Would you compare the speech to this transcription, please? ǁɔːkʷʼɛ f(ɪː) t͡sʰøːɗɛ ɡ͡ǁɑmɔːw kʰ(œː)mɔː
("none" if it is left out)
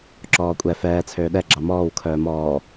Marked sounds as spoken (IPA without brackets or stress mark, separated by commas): ɛː, œː